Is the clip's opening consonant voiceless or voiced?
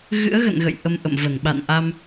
voiced